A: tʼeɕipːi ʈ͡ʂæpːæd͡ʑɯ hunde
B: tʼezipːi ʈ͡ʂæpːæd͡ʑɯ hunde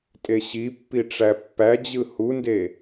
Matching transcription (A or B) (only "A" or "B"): A